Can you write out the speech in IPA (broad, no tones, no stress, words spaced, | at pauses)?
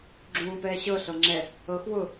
ɡ͡ǁũːpɛːɕɤ ɬɤŋ͡ǁɛ | ɤx wʊ